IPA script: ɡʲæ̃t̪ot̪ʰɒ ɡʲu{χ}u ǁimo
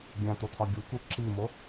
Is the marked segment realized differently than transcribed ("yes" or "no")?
yes